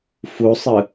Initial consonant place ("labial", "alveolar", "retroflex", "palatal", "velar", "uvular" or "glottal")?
labial